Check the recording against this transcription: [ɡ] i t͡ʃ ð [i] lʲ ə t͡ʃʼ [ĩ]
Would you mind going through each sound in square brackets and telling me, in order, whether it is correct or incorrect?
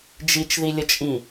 incorrect: d͡ʒ, correct, correct

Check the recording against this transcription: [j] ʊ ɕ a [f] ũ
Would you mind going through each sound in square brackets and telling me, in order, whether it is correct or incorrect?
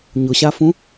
incorrect: ɲ, correct

